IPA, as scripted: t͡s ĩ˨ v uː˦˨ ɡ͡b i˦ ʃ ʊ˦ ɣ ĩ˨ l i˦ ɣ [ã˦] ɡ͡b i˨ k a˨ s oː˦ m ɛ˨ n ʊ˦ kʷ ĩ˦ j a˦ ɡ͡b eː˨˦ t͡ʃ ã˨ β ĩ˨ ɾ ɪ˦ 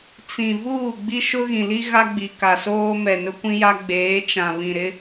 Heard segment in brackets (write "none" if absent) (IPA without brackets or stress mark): a˦